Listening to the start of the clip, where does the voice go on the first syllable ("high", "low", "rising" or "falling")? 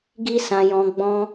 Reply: high